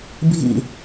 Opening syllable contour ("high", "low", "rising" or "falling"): low